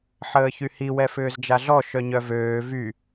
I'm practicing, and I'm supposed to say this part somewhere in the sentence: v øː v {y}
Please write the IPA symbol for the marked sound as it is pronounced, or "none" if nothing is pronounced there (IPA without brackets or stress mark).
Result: y